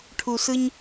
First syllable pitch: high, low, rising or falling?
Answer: low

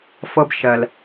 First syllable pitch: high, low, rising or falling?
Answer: high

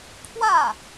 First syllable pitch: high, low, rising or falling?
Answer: falling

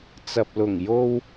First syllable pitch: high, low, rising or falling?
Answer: low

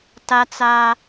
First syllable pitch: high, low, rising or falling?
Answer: high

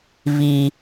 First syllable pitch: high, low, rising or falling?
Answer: low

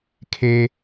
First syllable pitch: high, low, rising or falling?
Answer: high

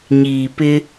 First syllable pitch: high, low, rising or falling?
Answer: low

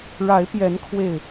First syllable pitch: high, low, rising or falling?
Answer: rising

